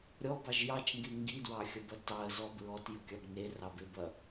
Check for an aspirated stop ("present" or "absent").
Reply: absent